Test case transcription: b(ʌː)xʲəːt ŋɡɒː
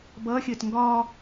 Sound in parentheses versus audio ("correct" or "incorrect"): correct